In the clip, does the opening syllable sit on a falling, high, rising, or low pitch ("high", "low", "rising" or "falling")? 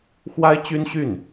high